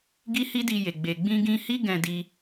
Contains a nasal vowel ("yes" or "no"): yes